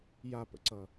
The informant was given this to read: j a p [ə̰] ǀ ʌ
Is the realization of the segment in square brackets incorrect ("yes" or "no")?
no